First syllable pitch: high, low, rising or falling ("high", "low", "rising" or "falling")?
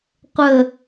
low